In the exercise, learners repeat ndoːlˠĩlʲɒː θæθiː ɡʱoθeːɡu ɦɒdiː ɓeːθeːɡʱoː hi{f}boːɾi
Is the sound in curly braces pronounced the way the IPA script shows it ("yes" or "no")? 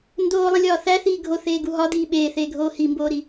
no